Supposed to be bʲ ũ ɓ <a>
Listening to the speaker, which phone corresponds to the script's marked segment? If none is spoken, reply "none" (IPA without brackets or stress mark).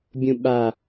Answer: a